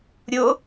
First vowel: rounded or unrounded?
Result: rounded